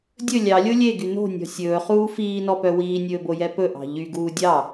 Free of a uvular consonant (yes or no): no